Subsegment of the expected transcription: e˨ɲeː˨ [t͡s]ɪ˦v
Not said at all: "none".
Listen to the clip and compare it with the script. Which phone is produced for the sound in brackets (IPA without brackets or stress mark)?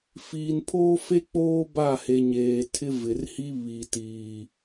tʰ